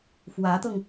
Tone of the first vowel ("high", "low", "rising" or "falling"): rising